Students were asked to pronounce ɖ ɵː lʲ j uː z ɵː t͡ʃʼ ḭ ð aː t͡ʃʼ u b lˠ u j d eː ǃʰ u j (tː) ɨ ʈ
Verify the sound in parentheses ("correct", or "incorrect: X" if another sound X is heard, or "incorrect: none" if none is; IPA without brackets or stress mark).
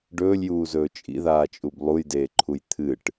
incorrect: t̪ʰ